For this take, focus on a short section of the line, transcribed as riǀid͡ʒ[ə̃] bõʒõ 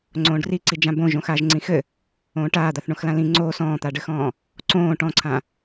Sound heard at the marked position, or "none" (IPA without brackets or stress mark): ã